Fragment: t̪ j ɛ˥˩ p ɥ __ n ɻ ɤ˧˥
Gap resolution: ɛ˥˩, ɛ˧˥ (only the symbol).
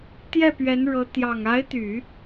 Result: ɛ˧˥